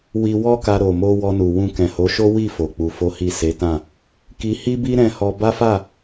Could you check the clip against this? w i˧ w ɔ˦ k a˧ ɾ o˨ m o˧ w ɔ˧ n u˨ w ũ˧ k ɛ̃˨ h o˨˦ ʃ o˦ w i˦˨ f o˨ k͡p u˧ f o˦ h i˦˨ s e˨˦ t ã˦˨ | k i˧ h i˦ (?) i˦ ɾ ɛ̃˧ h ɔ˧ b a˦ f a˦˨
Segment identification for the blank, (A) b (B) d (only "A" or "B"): A